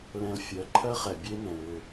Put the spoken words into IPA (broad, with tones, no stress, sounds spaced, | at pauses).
l ɛ̃˧ l fʲ ɜ˨˦ ǃʰ ɜ˦ χ ɛ˨ bʲ e˦ n ɛ̃˨ l ʏ˦˨